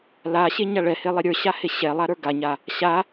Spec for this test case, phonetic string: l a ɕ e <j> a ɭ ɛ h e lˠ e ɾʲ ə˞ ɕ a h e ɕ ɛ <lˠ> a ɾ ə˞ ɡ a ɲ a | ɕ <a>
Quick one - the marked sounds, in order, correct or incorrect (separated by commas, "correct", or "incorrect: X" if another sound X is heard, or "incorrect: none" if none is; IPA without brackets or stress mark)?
incorrect: ɲ, correct, correct